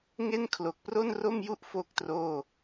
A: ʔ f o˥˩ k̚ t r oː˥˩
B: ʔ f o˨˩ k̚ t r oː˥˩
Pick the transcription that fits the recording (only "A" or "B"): A